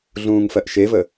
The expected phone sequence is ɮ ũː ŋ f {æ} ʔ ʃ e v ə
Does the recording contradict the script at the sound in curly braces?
yes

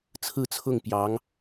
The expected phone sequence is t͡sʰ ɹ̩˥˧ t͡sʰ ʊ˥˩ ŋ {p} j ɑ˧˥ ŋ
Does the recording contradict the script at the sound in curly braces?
no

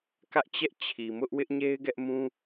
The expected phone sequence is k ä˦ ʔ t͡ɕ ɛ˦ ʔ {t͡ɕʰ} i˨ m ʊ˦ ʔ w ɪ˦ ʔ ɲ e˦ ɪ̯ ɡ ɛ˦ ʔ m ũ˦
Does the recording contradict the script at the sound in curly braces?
no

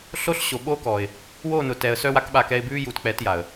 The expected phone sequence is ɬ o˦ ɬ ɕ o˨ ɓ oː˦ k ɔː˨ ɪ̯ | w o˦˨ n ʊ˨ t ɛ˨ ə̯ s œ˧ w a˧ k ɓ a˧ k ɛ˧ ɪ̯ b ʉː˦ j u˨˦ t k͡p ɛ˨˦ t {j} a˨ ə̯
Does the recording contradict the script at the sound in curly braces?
no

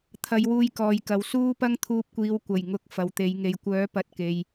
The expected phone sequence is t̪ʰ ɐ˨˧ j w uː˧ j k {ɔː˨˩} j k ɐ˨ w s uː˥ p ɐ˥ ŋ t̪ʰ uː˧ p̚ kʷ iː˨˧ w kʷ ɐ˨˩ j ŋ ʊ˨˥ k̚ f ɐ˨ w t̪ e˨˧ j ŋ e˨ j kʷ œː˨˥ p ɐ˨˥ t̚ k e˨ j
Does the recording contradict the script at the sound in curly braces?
yes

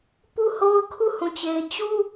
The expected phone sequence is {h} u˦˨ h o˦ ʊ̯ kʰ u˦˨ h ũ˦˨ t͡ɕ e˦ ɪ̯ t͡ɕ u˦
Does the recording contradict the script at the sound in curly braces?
yes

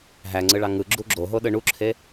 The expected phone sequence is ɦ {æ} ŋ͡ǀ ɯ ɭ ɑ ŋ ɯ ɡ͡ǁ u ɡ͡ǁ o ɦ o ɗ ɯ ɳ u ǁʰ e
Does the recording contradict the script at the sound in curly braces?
no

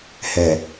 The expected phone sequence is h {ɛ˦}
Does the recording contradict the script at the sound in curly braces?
yes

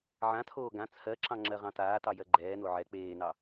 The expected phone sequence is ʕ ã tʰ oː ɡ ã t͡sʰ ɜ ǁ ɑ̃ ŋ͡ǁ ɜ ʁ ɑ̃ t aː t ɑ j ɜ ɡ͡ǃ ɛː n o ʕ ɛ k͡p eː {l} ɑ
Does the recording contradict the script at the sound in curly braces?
yes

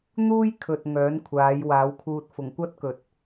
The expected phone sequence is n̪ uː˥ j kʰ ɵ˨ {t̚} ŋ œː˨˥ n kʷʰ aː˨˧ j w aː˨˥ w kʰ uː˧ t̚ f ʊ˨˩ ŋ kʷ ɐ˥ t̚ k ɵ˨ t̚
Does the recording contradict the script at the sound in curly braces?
no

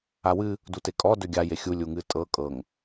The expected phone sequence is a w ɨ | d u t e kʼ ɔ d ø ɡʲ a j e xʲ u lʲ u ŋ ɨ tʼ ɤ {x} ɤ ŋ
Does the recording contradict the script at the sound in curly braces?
yes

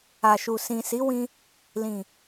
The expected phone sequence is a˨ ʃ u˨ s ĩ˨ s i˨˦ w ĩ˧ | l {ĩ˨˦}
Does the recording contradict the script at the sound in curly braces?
yes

